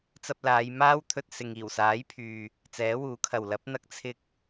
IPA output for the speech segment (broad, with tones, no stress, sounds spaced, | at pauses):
t͡s ɐ˧ p̚ l aː˨˧ j m aː˥ w t̪ʰ ɵ˧ t̚ s ɪ˨ ŋ iː˨˩ w s aː˨˥ j pʰ yː˨ | t͡s ɛː˨˥ w uː˨˥ kʰ ɐ˨ w l ɐ˨˥ p̚ n̪ ɐ˧ k̚ t͡sʰ ɪ˧ k̚